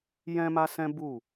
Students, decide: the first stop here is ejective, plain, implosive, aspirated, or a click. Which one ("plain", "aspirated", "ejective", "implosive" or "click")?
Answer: plain